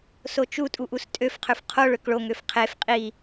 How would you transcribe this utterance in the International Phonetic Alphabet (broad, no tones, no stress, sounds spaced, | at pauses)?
s o t͡ʃ u tʼ u ʔ u s tʼ ø f qʰ ø f qʰ o ɭ ø k ɭ o ŋ ø f qʰ e f qʼ i